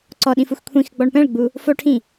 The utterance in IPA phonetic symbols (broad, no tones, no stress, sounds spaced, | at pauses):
ǀ ɔ ɗ ĩ f u x kʷʰ ĩ x ɡ͡b ɔ ɳ p ɛ̃ ɭ ɡ͡b u | f o ʈʰ ĩ